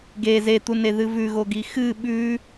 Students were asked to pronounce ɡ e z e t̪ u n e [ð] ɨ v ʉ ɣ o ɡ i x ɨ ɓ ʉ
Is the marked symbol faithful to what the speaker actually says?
yes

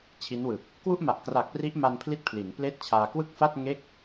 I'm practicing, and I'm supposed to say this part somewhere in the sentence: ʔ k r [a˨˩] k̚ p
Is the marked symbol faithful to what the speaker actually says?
yes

